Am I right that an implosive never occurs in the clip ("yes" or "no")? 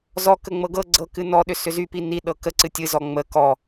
no